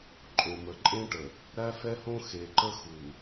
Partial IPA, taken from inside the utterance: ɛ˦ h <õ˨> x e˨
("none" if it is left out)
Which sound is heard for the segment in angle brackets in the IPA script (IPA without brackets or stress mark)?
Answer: õ˦